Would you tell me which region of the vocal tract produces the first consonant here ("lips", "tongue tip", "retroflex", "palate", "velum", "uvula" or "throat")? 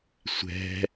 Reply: tongue tip